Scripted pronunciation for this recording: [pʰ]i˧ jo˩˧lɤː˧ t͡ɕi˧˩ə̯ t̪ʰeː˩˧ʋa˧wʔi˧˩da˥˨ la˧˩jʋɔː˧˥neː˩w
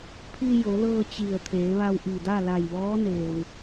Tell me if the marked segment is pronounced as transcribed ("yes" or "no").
yes